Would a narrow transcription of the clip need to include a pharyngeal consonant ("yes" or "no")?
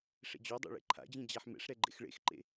yes